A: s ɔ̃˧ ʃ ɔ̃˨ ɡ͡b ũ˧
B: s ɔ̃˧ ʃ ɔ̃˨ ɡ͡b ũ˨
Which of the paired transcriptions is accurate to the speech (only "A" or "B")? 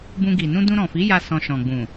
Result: B